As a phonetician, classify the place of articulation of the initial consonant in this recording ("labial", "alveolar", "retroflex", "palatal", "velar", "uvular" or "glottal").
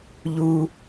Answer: palatal